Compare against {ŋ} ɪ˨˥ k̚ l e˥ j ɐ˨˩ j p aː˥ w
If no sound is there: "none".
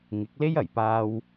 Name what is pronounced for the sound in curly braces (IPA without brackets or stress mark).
ŋ